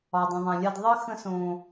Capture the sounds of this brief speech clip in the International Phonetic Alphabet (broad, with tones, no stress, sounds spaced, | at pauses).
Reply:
ɒ˨ dˤ ə̃˨ ðˤ ã˨ lʲ a˧ d ðˤ ə˦ x ə̃˧ s õ˨